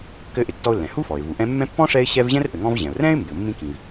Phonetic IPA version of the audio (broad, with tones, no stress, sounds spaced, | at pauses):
k ɘ˦ ʔ ɪ˨ tː ɔ˦ ʊ̯ lː ɛ̃˩ h u˥ f ɔ˩ ɪ̯ v u˩ ʔ ɛ̃˦ mː ɛ̃˥ pː ɔ̃˥ ʂ ɛ˦ ɪ̯ ɕ ɛ˦ v ʑ ɛ̃˥ r ʔ ɘ˨ ŋ ɔ̃˦ v ʑ ɛ̃˩ ʊ̯ r ɛ̃˥ ɪ̯ m b ɪ˨ ʊ̯ mː ĩ˥ k ĩ˨ v